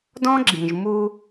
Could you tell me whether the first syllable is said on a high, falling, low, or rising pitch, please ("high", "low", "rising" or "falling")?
high